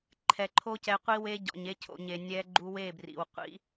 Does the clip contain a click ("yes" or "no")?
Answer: yes